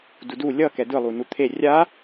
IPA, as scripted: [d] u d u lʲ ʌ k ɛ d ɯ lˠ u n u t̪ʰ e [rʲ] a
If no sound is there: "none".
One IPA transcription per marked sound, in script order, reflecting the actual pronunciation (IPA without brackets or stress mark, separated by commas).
d, rʲ